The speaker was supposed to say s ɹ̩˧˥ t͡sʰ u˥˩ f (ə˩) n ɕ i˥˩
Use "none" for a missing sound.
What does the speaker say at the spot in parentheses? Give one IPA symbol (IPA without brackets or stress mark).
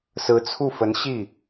ə˧˥